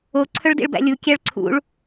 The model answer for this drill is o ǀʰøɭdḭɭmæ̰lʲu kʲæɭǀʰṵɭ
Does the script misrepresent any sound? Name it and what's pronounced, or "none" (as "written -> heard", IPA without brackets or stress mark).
m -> b